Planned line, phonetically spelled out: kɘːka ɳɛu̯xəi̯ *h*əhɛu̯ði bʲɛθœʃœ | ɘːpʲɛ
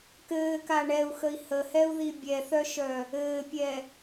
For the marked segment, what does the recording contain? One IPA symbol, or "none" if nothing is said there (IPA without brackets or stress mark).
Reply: h